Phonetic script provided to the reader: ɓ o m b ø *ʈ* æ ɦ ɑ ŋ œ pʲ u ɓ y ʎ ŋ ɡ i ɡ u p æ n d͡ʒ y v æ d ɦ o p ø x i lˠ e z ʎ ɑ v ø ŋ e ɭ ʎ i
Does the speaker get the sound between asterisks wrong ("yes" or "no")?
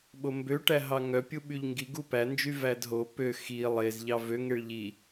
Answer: no